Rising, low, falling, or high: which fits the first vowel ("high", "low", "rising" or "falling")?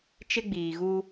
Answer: high